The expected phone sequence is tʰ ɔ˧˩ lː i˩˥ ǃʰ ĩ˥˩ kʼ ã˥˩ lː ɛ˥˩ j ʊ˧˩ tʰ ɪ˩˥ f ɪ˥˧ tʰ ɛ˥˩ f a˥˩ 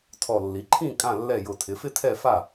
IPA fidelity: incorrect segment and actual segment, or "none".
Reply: none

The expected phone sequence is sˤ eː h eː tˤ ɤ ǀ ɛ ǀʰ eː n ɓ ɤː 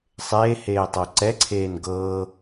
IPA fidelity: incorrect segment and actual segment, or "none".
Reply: ɓ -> ɡ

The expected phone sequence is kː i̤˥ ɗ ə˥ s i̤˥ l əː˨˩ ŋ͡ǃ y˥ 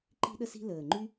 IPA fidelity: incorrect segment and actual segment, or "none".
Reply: kː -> ǃ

